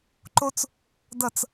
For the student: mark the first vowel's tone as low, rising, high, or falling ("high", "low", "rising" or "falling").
high